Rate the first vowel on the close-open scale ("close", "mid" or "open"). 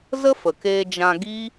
mid